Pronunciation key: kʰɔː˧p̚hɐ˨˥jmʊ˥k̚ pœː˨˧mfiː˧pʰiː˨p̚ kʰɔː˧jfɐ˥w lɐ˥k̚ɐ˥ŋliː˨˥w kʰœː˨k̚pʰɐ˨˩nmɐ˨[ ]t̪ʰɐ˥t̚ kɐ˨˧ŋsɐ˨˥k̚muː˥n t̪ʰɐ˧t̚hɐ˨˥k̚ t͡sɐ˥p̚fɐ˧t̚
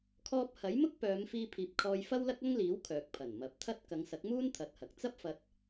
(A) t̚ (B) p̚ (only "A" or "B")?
B